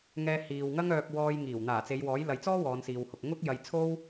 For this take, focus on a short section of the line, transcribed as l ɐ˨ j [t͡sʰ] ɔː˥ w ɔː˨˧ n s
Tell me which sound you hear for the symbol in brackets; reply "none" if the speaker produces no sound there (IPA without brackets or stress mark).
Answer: t͡s